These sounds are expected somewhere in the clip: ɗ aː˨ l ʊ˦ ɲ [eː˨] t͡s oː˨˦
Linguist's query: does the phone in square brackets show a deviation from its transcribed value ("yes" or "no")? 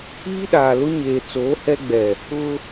no